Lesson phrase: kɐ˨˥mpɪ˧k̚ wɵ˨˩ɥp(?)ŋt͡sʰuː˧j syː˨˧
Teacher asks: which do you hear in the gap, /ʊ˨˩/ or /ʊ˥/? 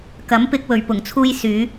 ʊ˨˩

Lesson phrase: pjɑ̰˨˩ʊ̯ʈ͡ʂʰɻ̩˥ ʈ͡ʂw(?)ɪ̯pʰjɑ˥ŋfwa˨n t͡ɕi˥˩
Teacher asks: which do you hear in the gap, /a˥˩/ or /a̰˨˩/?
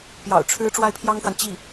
a˥˩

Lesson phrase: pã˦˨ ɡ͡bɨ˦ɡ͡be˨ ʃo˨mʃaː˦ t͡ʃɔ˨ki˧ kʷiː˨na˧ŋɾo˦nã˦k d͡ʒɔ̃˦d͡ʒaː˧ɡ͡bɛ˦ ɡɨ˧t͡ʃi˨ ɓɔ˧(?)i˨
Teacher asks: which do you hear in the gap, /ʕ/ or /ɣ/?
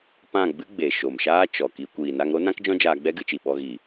ɣ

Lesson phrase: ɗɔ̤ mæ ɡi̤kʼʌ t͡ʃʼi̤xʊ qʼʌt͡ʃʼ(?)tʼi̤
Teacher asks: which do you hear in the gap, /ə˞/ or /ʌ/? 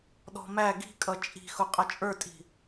ə˞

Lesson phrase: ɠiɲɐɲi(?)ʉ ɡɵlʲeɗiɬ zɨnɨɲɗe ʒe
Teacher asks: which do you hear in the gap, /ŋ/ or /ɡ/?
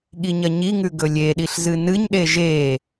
ŋ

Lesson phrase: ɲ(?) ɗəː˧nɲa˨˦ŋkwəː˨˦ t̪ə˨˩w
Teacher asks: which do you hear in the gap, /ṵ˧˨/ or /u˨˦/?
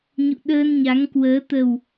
ṵ˧˨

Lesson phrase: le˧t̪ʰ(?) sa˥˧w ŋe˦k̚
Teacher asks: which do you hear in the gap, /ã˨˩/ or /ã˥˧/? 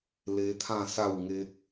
ã˥˧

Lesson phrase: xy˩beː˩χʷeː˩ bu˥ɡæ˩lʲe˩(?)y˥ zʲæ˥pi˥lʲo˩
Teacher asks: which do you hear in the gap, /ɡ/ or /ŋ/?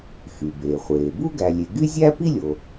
ɡ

